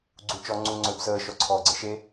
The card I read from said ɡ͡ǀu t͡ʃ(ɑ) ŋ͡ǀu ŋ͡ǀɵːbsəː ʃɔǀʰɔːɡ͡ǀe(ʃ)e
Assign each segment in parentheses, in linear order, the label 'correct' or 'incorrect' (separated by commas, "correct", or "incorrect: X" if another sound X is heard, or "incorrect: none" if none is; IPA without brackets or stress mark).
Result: incorrect: ɔ, correct